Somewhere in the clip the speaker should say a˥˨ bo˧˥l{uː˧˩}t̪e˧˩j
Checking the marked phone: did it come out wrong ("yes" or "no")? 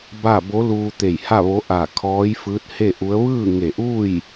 yes